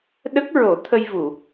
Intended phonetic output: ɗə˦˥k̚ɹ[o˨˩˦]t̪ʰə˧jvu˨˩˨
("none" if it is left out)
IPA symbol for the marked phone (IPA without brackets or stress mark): o˨˩˦